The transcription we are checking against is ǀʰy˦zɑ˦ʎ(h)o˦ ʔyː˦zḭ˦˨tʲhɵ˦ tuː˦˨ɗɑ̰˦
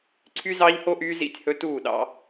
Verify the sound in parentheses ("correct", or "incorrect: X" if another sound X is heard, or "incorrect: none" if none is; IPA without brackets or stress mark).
correct